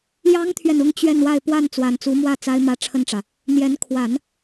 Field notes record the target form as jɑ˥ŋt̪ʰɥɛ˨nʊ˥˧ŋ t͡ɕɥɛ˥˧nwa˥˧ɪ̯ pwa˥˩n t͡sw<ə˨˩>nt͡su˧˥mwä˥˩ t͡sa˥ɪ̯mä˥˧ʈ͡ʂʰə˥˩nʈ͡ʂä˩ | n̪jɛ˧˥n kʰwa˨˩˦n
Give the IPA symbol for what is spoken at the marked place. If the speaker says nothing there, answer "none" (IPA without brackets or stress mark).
a˨˩